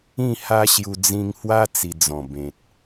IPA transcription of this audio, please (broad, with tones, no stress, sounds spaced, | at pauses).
ĩ˥˧ h a˦ ɕ j u˧ d͡z ĩ˧ ŋ h w a˦ t͡s i˧ d͡z ɔ̃˨˩ b ẽ˨ t̚